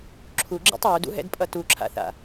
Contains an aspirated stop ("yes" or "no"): yes